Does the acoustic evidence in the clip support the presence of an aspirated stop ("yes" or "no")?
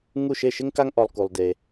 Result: no